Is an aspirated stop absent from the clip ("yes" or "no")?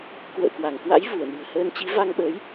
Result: yes